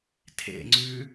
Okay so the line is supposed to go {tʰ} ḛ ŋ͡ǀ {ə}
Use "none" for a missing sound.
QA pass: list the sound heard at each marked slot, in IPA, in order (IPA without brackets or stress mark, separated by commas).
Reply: tʰ, ʉ